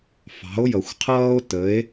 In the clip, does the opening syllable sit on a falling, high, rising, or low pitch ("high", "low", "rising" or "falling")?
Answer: rising